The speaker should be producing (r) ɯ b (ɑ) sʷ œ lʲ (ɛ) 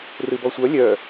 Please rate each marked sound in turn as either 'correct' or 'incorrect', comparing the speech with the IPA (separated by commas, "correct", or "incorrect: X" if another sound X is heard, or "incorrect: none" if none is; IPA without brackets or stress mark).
correct, incorrect: ɔ, incorrect: œ